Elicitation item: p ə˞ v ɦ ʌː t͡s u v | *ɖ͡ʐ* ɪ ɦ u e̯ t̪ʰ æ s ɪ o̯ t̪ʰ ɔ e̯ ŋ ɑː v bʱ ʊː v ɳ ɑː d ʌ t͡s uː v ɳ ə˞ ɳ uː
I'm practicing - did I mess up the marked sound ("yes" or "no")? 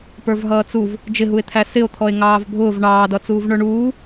yes